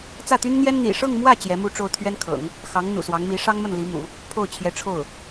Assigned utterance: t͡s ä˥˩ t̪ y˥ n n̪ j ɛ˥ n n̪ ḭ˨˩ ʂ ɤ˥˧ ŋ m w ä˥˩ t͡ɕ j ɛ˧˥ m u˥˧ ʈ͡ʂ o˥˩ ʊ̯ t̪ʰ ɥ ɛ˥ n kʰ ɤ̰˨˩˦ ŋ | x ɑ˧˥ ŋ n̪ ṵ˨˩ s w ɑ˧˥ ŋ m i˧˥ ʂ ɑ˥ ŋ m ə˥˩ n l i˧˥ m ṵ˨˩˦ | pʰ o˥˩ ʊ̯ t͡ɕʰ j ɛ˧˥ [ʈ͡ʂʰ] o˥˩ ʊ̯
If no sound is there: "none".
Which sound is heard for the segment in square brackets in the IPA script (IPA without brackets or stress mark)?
ʈ͡ʂʰ